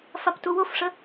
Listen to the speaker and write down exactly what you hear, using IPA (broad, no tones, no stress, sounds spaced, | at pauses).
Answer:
f a p t u w o f ʂ ə